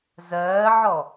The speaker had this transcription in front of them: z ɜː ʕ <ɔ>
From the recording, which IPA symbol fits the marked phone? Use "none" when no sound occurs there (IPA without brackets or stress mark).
ɔ